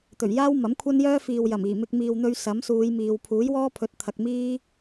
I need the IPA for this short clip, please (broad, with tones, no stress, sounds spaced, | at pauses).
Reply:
t̪ ɵ˨˩ ɥ j aː˥ w m ɐ˨˥ m kʷʰ ɐ˥ n j œː˥ f iː˨ w j ɐ˨˩ m iː˨˩ m ɪ˧ k̚ m iː˨ w n̪ ɵ˧ ɥ s ɐ˨˥ m s uː˨˧ j m iː˨ w pʰ uː˨˥ j w ɔː˥ pʰ ɵ˨˥ t̚ t̪ʰ ɐ˨ k̚ m iː˥